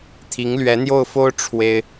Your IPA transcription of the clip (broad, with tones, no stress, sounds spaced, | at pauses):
t̪ʰ i˧˥ ŋ l ɥ ɛ˧˥ n̪ j o˥˩ ʊ̯ f o˥ ʊ̯ ʈ͡ʂʰ w e˥ ɪ̯